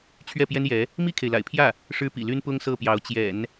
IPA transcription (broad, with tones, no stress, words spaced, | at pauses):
t͡ɕʰɥɛ˥˩pjɛ˥njɛ˧˥ | mi˥˩kʰe˩ɪ̯la̰˨˩ɪ̯pʰjä˥˩ | ʂɻ̩˥pḭ˨˩ly˥n pʊ˥ŋsɤ˥˩pjɑ˧˥ʊ̯ t͡ɕjɛ̰˨˩˦n